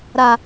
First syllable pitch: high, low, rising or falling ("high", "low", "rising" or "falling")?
low